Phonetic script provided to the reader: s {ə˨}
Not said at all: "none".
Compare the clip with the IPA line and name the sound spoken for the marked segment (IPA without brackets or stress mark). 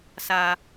a˨